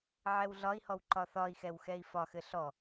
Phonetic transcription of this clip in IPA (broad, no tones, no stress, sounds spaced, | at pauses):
ʕ ɛ w ɮ ɒ i̯ h ɔ w ǃ ɒ θ ɒ i̯ x ɛ w x ɛ i̯ f ɒ x ɘ ɬ ɔ